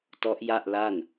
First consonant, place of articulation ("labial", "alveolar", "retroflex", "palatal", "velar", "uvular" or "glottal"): alveolar